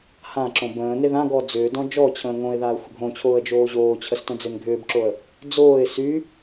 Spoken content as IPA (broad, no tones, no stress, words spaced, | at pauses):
hã ǁõbə̃ːne ðãɡɔ d͡zʏːdɔ̃ d͡ʒɔt͡ɕʰə̃ː ŋõɪ̯ðaə̯ xʷəɡʱõt͡ɕʰoːə̯ d͡ʒoːʑoːt͡ɕʰəs tõd͡zenɡʱʏːbǁoə̯ | d͡zoːɪ̯ sy